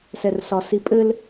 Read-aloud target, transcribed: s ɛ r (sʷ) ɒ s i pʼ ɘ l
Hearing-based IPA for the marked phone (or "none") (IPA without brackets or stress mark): s